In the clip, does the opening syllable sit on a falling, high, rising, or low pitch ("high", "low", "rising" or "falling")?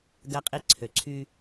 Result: low